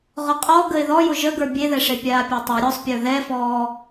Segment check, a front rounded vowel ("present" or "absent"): absent